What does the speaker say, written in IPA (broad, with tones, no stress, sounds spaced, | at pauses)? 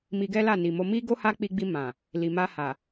m i˧ ɡ ɛ˦ l a˦˨ n i˨ m o˧ m i˦ ɡ o˦ h a˦ k͡p i˧ ɡ͡b i˧ m ã˨ | l i˨ m a˧ h a˨